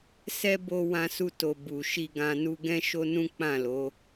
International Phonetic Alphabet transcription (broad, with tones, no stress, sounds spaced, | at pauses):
s ɛ˦ b o˧ w ã˧ s u˧ t o˨ b u˨ ʃ i˧ ɡ ã˧ n u˧ ɡ ɛ̃˦ ʃ o˦ n ũ˦ k͡p ã˦˨ l o˨˦